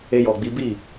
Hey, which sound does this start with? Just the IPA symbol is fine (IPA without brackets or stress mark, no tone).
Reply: e